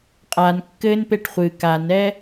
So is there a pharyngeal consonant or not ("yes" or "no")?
no